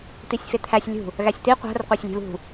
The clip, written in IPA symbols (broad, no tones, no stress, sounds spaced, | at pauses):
t̪ i sʲ f e t̪ʰ æ sʲ lʲ ṳ | ɣ æ sʲ t̪ i qʷ æ̤ r qʷ æ sʲ lʲ e̤ β ṳ